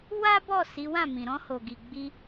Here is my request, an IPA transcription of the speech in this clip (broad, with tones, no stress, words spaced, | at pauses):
wa˦bɔ˦˨ si˨˦wã˦˨mĩ˨ ɾɔ̃˧ho˨ɡi˨ɡ͡bi˧